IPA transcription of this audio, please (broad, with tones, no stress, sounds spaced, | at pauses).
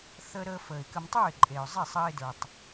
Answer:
θ əː˧ ɾ əː˧ f əː˨ ɪ̯ k ə˧ m tˤ ə˞˦˨ ɪ̯ ǃʼ eː˨ ʊ̯ zˤ e˦˨ sˤ əː˧ ɪ̯ d ə˞˨ tˤ